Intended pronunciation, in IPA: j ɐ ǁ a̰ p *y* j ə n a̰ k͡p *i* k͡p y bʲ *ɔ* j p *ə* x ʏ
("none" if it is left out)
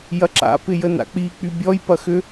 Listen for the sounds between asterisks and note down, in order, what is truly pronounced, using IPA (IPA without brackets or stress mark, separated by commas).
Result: ɪ, i, ɔ, ɐ